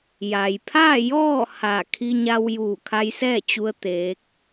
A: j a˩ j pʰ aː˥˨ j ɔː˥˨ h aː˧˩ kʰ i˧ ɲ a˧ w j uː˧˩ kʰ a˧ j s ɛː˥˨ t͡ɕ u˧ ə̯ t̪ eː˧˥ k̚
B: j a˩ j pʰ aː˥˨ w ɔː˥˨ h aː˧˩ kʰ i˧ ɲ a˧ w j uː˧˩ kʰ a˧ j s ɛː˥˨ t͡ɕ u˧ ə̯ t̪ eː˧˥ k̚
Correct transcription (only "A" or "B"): A